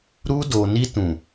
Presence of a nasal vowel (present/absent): present